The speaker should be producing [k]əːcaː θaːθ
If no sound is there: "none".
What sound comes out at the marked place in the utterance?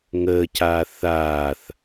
ŋ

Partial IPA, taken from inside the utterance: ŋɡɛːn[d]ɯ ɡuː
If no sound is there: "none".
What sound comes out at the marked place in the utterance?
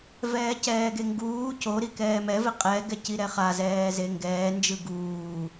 d͡ʒ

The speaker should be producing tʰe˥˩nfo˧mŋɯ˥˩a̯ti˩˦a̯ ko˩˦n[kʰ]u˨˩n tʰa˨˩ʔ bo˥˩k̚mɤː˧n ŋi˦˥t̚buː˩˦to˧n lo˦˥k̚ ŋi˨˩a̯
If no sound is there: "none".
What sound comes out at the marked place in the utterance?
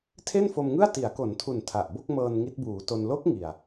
tʰ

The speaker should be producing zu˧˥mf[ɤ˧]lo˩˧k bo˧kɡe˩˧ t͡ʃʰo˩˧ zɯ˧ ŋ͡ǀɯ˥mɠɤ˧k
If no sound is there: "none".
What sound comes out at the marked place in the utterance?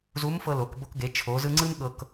ɤ˧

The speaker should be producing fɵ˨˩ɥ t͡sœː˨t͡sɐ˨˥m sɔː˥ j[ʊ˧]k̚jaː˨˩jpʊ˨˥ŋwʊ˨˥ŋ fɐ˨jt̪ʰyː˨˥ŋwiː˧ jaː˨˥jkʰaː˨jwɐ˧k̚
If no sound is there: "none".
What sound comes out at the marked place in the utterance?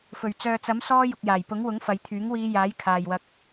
ʊ˨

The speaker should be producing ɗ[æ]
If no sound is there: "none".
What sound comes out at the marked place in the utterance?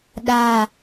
a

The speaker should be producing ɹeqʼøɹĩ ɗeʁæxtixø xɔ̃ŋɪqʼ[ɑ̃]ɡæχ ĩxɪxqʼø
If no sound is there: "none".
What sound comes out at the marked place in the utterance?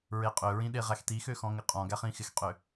ɔ̃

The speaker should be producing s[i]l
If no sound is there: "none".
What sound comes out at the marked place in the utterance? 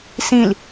ĩ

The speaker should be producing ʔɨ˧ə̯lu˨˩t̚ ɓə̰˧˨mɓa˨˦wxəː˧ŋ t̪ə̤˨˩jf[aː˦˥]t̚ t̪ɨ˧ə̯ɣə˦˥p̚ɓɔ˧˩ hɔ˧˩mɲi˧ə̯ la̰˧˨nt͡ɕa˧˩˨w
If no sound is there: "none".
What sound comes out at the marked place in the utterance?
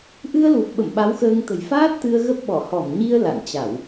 aː˦˥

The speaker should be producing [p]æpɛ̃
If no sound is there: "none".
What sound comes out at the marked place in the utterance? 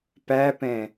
p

